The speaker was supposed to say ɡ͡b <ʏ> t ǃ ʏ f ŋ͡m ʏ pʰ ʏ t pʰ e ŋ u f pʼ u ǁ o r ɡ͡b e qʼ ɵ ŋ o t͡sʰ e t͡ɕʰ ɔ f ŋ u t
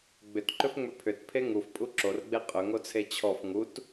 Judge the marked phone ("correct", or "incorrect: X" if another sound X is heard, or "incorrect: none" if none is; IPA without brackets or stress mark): correct